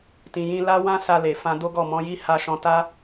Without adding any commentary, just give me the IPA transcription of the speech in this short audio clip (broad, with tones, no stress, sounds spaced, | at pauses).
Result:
t ĩ˨ j ĩ˧ l a˦ w ã˦ s a˧ l e˨ f ã˧ d o˦ ɡ ɔ˦˨ m ɔ̃˨˦ j i˦ h a˦ ʃ ɔ̃˧ t a˦